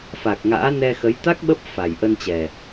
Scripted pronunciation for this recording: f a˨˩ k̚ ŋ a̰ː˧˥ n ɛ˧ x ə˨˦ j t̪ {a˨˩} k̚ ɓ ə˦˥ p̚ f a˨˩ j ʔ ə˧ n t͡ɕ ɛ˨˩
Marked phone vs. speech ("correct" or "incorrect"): incorrect